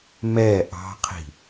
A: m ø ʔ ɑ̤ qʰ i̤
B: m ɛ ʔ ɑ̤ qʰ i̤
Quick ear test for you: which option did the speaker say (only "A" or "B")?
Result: B